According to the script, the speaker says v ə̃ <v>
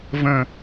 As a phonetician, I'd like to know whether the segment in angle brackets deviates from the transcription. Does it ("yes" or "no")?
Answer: yes